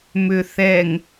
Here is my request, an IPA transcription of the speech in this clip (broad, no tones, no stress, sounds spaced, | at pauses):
m ʏ θ ɛ ŋ